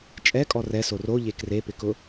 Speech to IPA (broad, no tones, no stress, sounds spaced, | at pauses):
t͡ʃʼ ɛ kʼ ɔ r ɛ s o r o ʎ e k r e p ɪ k ʊ